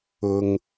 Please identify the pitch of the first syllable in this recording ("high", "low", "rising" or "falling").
low